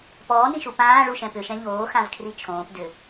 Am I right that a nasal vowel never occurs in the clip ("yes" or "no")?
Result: no